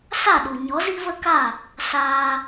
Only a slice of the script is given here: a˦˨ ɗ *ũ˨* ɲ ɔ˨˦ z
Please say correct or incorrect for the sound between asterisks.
incorrect: u˨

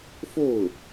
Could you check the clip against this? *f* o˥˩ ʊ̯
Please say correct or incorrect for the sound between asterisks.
correct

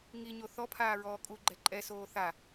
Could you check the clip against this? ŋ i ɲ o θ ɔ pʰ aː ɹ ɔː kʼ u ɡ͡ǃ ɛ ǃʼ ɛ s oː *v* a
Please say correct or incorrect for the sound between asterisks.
incorrect: θ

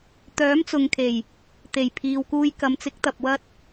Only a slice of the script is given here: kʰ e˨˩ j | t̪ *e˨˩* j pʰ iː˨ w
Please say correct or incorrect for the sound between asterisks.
correct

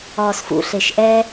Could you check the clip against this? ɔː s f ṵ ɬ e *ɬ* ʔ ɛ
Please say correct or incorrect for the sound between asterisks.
incorrect: ʃ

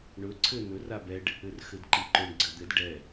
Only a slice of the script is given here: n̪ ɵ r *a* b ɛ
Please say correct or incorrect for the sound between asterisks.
correct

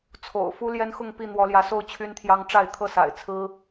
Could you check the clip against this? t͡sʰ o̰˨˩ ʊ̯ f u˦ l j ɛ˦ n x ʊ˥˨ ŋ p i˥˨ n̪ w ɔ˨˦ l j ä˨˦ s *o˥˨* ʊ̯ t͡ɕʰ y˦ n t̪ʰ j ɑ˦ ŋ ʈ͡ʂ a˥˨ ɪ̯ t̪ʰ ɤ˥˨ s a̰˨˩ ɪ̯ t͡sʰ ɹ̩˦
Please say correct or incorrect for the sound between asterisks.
correct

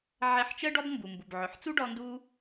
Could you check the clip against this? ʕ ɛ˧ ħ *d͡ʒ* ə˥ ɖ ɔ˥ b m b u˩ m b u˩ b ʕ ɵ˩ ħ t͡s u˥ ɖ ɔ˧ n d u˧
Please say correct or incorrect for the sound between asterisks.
incorrect: t͡ʃ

